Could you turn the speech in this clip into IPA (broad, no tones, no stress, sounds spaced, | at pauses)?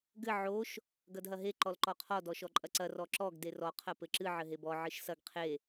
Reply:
ɡ ɘ ʕ o ʃ | ɡ ɐ d ɦ ɐ ɦ e ǃ ɔ l ǃ ɔ qʰ ɔ d ɔ ʃ ɔ ǃʼ ɐ ǀ ɐ r ɔ ǁ ɔ ɡ d e r ɔ qʰ ɐ p ɘ ǁ ɨ ʕ ɘ ɦ e b ɔ ʕ ɨ ʃ s ɐ ɡ qʰ e